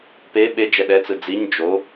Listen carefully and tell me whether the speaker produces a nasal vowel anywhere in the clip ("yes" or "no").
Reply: no